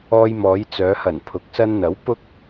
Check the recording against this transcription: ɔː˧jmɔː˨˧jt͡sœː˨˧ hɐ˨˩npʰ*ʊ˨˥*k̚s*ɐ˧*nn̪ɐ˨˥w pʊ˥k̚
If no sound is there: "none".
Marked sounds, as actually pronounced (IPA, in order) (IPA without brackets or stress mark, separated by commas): ʊ˨˥, ɐ˧